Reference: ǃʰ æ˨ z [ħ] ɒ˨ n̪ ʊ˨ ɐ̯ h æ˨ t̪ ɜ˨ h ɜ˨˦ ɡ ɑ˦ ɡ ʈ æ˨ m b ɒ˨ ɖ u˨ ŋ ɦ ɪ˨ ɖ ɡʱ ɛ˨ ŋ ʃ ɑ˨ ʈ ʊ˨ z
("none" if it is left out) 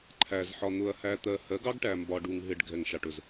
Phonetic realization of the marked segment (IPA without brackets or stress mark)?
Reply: ħ